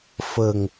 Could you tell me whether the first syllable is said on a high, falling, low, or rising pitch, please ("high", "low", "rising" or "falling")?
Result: low